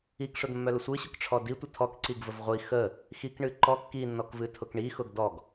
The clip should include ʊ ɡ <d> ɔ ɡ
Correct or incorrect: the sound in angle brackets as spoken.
correct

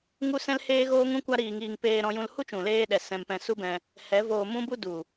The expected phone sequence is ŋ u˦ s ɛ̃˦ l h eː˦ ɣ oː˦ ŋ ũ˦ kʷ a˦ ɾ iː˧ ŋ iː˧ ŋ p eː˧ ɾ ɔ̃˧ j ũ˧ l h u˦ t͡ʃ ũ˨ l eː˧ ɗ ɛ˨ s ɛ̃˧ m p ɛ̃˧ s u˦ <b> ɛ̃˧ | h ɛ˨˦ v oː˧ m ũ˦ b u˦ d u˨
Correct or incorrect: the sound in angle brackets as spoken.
correct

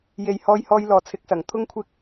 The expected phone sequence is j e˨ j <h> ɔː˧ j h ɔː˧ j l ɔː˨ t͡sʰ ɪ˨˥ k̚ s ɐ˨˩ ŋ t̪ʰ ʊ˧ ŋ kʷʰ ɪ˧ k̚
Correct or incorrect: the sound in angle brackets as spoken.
correct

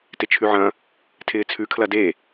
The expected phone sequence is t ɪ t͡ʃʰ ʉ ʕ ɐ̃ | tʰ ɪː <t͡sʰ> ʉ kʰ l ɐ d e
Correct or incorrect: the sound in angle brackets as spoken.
correct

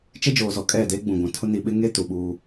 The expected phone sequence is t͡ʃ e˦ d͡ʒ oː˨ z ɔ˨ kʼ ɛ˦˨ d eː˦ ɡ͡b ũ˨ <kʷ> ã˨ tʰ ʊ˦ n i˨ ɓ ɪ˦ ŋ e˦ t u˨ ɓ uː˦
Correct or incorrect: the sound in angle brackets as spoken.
incorrect: ɡʷ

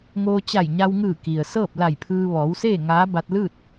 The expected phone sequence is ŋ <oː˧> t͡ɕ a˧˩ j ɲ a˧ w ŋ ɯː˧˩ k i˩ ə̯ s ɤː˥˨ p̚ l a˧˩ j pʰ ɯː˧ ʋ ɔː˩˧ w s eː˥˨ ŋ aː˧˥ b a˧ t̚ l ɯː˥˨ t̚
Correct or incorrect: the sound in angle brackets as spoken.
correct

